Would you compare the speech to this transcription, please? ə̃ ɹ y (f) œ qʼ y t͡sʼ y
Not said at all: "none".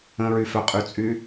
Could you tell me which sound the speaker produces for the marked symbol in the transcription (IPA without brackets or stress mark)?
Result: f